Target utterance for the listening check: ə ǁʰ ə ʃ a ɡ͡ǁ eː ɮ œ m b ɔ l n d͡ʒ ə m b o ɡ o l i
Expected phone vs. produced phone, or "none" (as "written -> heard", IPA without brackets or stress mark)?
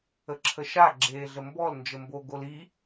œ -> ə